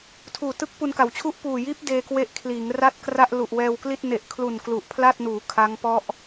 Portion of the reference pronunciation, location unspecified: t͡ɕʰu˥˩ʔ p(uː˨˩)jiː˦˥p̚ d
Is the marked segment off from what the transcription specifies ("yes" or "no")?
no